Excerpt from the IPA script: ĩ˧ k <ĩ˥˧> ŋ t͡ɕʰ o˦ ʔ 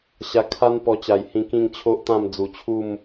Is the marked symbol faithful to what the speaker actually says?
yes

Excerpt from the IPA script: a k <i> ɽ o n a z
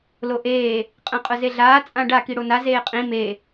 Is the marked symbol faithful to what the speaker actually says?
yes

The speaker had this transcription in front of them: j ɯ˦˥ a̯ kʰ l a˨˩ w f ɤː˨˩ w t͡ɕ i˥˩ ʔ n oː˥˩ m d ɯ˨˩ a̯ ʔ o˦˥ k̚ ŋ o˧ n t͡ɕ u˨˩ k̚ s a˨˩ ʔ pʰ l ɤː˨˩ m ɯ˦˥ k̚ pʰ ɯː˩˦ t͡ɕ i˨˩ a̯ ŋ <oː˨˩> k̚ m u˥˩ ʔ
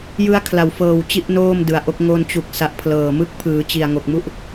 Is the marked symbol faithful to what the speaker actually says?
no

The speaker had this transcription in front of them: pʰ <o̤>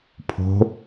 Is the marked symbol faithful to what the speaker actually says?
yes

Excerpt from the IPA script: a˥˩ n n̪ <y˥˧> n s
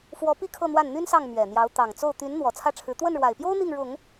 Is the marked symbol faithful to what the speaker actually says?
no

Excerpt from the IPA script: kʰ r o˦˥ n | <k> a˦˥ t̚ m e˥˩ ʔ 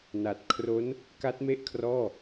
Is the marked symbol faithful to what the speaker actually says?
yes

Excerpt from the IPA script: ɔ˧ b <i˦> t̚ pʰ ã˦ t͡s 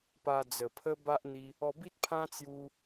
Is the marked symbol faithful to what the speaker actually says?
yes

